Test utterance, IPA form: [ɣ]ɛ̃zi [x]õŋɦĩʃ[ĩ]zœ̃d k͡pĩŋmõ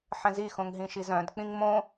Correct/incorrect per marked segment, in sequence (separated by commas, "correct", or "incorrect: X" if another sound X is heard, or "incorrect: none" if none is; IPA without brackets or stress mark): incorrect: ħ, correct, incorrect: i